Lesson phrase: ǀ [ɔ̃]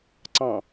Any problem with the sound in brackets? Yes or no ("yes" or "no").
yes